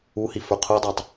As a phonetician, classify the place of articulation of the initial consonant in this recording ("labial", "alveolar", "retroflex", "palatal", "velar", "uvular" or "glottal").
glottal